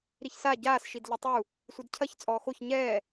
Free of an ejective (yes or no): no